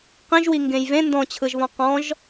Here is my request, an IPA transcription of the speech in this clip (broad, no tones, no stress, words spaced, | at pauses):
qĩʒwi ŋɡẽjvẽ ndɔ̃t͡ɕʰɯʒβɔ̃ qɔ̃ʒ